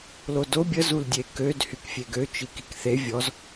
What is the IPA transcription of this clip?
l o d o bʲ ə z u l dʲ e k ø d h y k fʲ e ɡ ø t͡ʃ i k i k θ e vʲ ɔ z

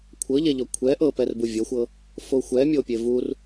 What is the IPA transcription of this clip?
kʷʰ ɤ ʎ ɛ ʎ ɔ kʷʰ ɛ ʔ ɤ p ɛ r b u vʲ ɤ xʷ ɤ | f o xʷ ɛ mʲ o pʲ e v u r

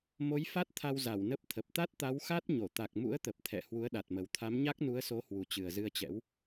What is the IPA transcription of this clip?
m o˨˦ j f a˦˥ t̚ t̪ʰ a˧ w z a˧˩ w n ə˦˥ p̚ t̪ʰ ə˨˩ p̚ t̪ a˦˥ t̚ t̪ a˨˦ w x a˦˥ t̚ ɲ o˧˩ t̪ a˨˩ k̚ m ṵ˧˥ ə̯ t̪ ə˨˩ p̚ t̪ʰ ɛ̰˧˨ h w u˨˦ ə̯ ɗ a˨˩ t̚ m ə˨˩ w t̪ʰ a˨˦ m ɲ a˦˥ k̚ n u˨˦ ə̯ s o˨˦ h w u˨˩ t͡ɕ ɨ˨˩ ə̯ z ɨ˧ ə̯ t͡ɕ ɛ̰˧˥ w

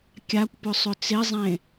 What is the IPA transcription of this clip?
kʲ a kʷ p ʏ sˤ ʏ t͡s e zˤ ẽ

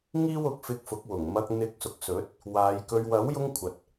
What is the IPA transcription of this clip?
ŋ iː˥ w ʊ˨˥ k̚ f ɪ˧ k̚ f ʊ˨˥ k̚ w ʊ˨˩ ŋ m ɐ˧ k̚ n̪ ɪ˨˥ k̚ s ʊ˨ k̚ s ɵ˨˥ t̚ | w aː˨˧ j k ɵ˧ ɥ w ɐ˨˥ w j ʊ˧ ŋ kʷʰ ɐ˨ t̚

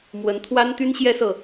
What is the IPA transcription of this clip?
m w ə˧˥ n t̪ʰ w a˥ n t̪ y˥ n ɕ j ɛ˥ s ɤ˨

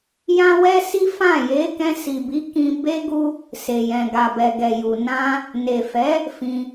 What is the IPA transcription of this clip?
j ã˦ w ɛ˦ s i˦ f ã˦˨ j e˨˦ k ɛ̃˧ s i˨ b i˨˦ k ĩ˧ b e˦ ɡ u˦ | s e˨ j ɛ̃˨ ɡ a˨ b ɛ˨ ɡ ɛ˨ j u˨ n ã˧ | n e˨ f ɛ˨˦ | f ĩ˧

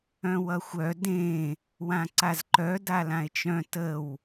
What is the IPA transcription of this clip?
œ̃ w ʌ xʷ œ d ẽ | w ã ǀ a z ǃ œ d a l ã e̯ t͡ʃ œ̃ t ə w

